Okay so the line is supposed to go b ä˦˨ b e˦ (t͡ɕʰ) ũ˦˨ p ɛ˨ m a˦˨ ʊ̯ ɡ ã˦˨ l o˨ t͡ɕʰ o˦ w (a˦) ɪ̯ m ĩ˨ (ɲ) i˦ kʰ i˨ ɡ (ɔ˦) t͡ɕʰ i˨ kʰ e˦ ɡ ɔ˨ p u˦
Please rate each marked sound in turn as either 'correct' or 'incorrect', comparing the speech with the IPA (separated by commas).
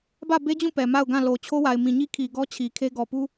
incorrect, incorrect, correct, correct